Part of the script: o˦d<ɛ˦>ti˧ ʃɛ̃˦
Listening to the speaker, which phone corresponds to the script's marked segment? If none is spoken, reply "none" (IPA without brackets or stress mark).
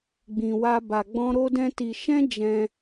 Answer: ɛ̃˦